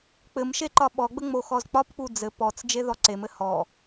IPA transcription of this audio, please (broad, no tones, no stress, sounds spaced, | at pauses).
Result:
k͡p ɘ m ʃ e ǃ ɒ ɓ ɔ ɡ͡b ə ŋ͡m o x ɔ z k͡p ɒ p k͡p u d͡z ɘ p ɔ t͡s d͡ʒ e ð ɔ ǀ e m ɘ h ɔ